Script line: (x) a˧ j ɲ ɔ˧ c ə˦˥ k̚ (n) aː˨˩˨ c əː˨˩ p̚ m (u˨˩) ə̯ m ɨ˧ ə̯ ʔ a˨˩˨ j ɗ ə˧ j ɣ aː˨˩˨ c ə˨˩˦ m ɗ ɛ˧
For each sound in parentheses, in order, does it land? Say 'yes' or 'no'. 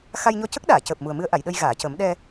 yes, no, yes

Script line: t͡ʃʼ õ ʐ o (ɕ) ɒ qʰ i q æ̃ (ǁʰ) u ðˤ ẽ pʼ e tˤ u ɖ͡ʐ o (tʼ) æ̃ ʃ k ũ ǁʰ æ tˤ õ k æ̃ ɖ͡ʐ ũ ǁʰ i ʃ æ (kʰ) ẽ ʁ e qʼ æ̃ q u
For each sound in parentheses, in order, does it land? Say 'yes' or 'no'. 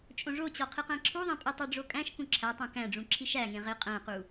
no, yes, no, no

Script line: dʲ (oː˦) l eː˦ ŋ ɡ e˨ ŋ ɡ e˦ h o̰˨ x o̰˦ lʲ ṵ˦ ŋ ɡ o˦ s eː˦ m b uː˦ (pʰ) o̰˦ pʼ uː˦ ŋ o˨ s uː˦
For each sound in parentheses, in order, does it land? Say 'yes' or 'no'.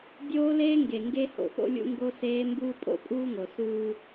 yes, no

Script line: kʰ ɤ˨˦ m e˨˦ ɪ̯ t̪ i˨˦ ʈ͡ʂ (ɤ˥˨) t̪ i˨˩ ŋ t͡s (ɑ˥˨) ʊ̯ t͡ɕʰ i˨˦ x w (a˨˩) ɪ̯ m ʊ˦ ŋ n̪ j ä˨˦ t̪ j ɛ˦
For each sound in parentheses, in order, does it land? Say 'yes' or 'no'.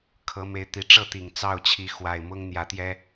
yes, yes, yes

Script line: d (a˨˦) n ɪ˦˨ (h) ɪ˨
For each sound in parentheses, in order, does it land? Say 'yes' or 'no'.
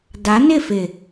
yes, no

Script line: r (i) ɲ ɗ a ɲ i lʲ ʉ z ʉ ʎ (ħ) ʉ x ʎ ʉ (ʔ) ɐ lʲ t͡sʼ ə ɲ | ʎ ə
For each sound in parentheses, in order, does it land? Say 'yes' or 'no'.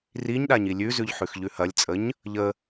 yes, yes, no

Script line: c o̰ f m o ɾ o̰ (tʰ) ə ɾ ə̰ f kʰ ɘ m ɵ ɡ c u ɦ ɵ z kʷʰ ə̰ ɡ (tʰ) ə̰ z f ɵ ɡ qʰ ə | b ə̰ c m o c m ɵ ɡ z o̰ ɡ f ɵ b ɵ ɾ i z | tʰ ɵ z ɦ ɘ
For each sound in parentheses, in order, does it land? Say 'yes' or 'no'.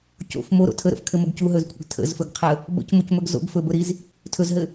yes, yes

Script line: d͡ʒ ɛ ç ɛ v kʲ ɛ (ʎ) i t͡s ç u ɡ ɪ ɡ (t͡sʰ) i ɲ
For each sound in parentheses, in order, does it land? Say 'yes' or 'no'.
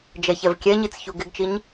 no, no

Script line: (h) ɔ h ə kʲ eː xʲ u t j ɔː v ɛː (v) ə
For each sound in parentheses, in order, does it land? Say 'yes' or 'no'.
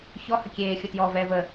no, yes

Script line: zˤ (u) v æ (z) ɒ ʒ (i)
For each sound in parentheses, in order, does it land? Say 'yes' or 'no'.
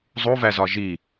yes, yes, yes

